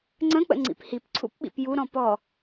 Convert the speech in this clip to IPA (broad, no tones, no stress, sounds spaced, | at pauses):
ŋ͡ǀ ə̃ k͡p ə̰ ŋ͡ǀ ḭ p h i p ǀʰ ṵ p ɓ ḭ p j u ɾ ɔ̃ p ɔ